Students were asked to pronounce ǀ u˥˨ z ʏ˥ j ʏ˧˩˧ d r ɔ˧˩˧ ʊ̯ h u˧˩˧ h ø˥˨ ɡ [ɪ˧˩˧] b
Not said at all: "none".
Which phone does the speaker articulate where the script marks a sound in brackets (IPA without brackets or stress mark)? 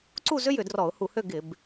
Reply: ɪ˧˩˧